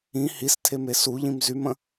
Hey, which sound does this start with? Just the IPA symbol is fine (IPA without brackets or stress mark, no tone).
ĩ